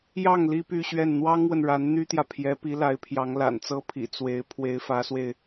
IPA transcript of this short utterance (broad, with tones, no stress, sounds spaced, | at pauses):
j ɑ˥˩ ŋ l i˥ p y˥˧ ɕ ɥ ɛ˥˩ n n̪ w ɑ˥ ŋ w ə˨ n ɻ a˧˥ n n̪ y˥ t̪ j ä˨ pʰ j ɛ˧˥ p i˧˥ l a˧˥ ɪ̯ pʰ j ɑ˧˥ ŋ l a̰˨˩ n t͡s ɤ˥ pʰ ḭ˨˩ t͡s w e˧˥ ɪ̯ pʰ w e˧˥ ɪ̯ f ä˧˥ s w e˧ ɪ̯